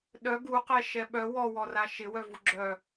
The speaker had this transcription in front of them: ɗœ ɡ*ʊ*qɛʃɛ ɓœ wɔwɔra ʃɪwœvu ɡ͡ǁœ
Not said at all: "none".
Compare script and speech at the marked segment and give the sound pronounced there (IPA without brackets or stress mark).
u